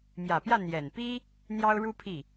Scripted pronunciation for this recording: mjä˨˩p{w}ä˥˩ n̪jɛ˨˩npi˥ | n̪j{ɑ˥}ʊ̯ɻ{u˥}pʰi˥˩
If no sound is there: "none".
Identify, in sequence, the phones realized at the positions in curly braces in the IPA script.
j, ɑ˥, u˥

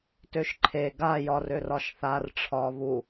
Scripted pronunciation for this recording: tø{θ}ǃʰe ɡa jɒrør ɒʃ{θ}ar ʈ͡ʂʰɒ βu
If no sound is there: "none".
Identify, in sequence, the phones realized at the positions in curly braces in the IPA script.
ʃ, θ

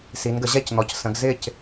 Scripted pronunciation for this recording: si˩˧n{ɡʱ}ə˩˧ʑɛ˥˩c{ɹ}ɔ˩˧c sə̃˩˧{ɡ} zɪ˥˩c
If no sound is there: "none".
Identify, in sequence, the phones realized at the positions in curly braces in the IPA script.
ɡ, n̪, ɡ

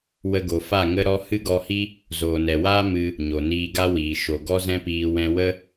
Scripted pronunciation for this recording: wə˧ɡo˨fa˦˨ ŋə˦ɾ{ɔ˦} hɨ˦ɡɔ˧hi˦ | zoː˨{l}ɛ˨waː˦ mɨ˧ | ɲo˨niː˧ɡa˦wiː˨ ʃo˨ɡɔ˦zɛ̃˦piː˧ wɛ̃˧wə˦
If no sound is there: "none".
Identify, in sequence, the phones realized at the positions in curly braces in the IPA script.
ɔ˦, n

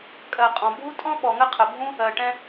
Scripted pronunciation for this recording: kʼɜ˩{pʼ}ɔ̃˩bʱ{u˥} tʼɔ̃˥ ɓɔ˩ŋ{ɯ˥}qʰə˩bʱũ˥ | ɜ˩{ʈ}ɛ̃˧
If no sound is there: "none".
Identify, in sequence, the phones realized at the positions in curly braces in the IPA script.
qʼ, u˥, ə˥, ʈ

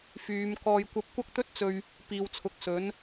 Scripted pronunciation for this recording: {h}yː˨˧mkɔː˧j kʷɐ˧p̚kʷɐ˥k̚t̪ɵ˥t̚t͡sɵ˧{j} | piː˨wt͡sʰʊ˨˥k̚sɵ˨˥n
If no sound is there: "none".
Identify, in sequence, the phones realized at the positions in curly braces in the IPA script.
f, ɥ

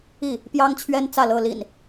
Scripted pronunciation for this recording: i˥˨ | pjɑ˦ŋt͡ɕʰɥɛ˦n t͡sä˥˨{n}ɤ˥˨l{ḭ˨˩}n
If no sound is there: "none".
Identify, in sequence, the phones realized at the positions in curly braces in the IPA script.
l, ḭ˨˩

